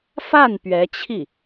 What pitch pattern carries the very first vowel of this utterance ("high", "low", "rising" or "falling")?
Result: falling